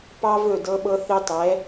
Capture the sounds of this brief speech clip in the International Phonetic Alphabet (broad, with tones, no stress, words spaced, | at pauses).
pɑ˦vɵ˦˨dɤ˦ɓɤ˦ θe˦tˤɛ˨˦